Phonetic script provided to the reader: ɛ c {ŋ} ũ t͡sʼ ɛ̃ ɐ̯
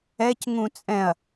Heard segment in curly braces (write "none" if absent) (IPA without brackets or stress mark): ŋ